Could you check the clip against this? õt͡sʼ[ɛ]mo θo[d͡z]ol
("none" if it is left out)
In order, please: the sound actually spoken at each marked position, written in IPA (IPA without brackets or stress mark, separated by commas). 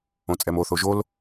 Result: ɛ, ʒ